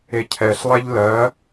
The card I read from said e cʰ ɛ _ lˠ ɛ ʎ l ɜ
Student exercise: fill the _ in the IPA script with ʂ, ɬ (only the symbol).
ɬ